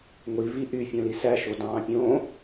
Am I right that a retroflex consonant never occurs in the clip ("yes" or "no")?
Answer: yes